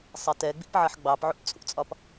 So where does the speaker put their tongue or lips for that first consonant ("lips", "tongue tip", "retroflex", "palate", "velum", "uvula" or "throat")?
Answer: tongue tip